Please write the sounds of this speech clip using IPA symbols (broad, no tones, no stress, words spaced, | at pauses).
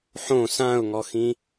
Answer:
ħõ sãʊ̯ŋɔxĩ